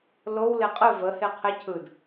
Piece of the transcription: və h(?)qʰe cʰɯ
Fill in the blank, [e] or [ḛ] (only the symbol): e